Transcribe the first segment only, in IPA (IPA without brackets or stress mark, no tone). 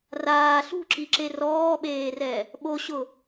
r